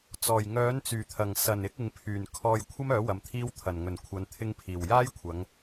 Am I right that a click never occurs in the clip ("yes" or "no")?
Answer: yes